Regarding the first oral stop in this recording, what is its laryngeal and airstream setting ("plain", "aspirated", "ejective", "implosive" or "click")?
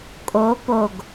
ejective